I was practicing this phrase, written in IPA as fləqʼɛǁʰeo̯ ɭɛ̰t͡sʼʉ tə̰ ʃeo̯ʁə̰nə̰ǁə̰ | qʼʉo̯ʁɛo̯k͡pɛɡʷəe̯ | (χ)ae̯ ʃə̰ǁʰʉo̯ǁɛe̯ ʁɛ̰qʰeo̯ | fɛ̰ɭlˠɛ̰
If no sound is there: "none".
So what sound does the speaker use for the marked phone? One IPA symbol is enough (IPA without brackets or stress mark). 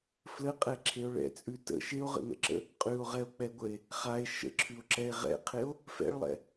χ